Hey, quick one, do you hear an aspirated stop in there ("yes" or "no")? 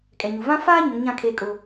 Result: yes